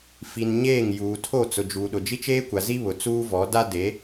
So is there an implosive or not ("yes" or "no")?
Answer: yes